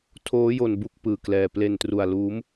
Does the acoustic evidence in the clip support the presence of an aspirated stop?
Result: yes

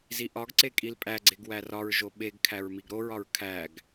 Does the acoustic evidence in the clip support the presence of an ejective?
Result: yes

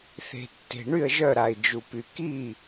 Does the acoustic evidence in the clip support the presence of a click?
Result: no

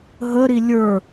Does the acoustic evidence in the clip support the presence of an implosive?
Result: no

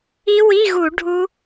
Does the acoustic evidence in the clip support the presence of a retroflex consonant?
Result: yes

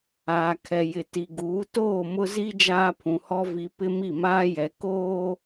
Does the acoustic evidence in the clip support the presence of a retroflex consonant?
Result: no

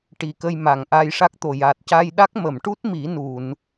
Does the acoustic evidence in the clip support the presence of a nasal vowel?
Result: no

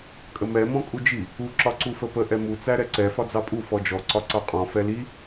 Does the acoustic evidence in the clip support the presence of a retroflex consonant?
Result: no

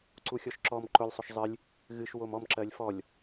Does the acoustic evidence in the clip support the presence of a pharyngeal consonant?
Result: no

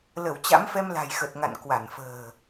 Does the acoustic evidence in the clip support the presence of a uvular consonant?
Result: no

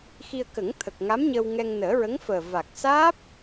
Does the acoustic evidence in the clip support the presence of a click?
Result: no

